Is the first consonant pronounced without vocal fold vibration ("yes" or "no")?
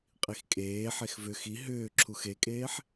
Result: yes